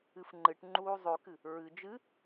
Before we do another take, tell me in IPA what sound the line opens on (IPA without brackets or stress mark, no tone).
ɨ